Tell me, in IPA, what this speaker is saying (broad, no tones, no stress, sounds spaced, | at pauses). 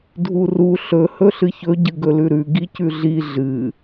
dʱ u r u ɬ ɵ h ɵ ɬ ɨ ç ɵ ɟ ɨ ɡ ɵ l ʉ ɾ ʉ ɡ i c ʉ ɮ i ɮ ɨ